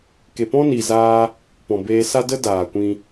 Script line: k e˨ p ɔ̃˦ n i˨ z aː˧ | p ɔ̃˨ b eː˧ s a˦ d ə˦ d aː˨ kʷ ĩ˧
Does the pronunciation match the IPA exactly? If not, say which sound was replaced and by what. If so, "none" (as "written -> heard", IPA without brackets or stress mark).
none